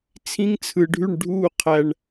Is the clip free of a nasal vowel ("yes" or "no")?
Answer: no